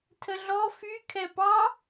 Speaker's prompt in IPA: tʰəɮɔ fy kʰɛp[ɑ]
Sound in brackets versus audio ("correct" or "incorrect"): correct